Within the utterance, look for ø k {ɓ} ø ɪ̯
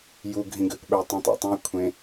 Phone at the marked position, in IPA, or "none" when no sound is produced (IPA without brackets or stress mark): ɓ